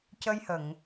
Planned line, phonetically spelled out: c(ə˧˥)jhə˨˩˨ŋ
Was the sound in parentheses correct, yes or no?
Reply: no